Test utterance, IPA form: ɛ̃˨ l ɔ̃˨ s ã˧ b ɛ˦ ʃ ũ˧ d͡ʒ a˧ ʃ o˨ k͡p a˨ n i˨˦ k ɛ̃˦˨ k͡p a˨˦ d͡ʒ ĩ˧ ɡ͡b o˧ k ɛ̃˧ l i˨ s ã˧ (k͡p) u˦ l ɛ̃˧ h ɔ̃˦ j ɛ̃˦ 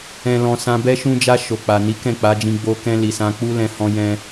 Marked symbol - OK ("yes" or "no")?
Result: yes